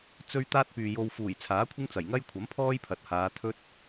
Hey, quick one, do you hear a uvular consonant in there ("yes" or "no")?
no